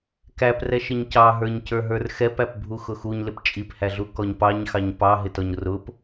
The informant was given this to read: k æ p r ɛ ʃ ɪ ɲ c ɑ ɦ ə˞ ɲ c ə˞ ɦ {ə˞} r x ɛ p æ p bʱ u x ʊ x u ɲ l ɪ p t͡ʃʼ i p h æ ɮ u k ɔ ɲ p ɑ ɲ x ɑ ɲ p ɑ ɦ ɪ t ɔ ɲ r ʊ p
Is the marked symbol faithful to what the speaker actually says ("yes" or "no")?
yes